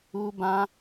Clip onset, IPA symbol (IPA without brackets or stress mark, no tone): u